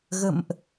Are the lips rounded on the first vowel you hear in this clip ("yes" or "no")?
no